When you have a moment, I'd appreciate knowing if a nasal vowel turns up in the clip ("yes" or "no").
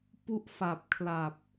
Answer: no